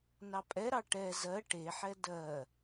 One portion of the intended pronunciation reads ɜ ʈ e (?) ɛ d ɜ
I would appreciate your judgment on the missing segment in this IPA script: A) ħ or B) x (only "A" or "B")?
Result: A